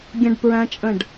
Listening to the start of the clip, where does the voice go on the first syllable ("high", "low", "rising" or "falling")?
high